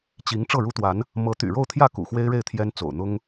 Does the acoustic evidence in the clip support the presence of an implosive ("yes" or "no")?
no